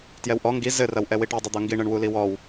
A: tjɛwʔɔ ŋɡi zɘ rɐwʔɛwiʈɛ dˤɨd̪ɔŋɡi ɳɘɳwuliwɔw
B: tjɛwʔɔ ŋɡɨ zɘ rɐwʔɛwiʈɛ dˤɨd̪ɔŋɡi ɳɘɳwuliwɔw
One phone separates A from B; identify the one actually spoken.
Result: A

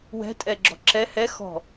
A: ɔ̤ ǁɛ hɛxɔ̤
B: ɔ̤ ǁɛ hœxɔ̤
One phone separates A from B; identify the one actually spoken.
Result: A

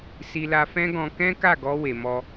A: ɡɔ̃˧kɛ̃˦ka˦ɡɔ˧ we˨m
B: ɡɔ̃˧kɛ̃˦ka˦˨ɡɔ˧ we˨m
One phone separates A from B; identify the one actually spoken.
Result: B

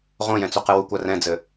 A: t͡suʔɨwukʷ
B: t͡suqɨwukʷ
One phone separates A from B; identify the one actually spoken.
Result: B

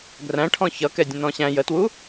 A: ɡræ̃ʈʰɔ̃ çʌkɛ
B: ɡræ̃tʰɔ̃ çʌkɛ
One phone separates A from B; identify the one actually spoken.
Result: A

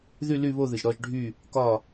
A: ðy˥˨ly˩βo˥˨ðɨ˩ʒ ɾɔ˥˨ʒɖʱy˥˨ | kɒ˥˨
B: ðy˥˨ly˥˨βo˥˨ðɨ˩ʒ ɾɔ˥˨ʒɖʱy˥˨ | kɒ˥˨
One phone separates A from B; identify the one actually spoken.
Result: B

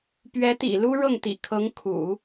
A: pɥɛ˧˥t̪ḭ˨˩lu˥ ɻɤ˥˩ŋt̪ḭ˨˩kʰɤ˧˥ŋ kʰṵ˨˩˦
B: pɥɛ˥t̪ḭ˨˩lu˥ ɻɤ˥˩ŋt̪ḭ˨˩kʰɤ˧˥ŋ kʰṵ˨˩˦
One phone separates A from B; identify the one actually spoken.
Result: A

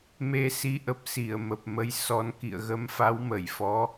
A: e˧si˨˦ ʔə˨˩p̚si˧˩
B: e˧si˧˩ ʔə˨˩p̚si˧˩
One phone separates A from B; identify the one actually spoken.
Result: A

